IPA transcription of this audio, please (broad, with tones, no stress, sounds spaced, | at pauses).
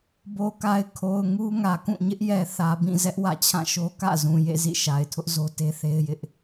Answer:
b o˨ k a˨ ɪ̯ kʰ o˨ ʊ̯ ŋ u˦ ŋ ä˨ k ũ˦˨ ɲ ɪ˦ ʔ j ɛ˨ θ ä˨ b ĩ˦˨ z ɛ˦ ʔ w ä̰˦˨ t͡ɕʰ ã˦˨ ʃ o˦ k ä̰˦˨ z ũ˨ j ḛ˦˨ z ḭ˦˨ ʃ a˨ ɪ̯ tʰ ʊ˦ ʔ z o˦ t e˦ θ e˦ ɪ̯ j ɪ˦ ʔ